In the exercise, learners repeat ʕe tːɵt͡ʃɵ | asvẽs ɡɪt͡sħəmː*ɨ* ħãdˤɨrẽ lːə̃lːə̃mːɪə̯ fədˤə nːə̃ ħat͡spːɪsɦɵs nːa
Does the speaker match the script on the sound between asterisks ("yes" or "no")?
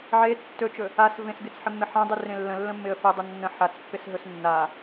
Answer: no